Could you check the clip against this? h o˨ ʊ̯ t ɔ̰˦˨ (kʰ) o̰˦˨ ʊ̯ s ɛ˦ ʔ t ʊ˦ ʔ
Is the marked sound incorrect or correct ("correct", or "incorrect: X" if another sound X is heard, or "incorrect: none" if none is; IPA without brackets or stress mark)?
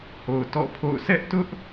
incorrect: pʰ